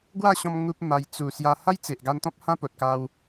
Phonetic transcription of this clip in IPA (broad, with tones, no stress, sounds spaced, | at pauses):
ɡ w a˥˧ ɕ ɔ̃˧ m ŋ u˦ p̚ m a˧ j t͡s u˨˩ s j a˧ h a˦ j t͡s e˨ ʔ ɡ a˧ n t̪ ɔ̃˦ p̚ h ã˦ p o˨ t̚ k a˧ w